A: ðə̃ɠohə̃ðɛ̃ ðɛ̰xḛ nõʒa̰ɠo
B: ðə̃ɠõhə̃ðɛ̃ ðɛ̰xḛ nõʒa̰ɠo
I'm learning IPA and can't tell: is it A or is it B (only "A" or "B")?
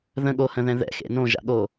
A